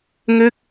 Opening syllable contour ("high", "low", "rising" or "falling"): falling